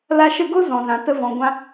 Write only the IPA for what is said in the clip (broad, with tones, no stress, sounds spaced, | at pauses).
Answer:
l a˧ ʃ ə˦˨ ɡ o˦ z ɔ̃˨ z ã˨ t ə˧ v ɔ̃˨ ɡʷ ã˧